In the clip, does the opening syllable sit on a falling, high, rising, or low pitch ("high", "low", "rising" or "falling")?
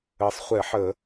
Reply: low